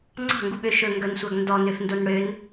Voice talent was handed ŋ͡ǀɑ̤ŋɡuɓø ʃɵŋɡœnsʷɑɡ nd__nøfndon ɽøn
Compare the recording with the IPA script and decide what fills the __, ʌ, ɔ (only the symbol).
ɔ